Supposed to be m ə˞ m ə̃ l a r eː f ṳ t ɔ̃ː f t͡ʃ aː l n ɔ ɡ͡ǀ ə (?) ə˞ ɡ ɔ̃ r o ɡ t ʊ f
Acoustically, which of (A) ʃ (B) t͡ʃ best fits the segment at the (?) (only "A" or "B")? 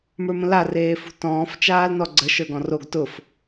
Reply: A